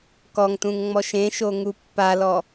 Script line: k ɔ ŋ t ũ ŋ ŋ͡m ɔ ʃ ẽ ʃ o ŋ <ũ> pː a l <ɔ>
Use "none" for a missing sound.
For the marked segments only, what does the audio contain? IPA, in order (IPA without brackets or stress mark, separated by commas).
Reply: u, ɔ